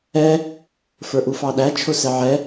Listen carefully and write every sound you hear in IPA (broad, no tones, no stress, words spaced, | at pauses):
ɛ | fə˞ʔufɑɗæ t͡ʃʰʊsɛʕɛ